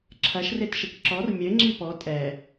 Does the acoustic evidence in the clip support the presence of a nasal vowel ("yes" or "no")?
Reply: no